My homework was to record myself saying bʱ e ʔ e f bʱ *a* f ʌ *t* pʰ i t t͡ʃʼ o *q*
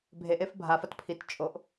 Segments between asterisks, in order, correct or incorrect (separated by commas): correct, correct, incorrect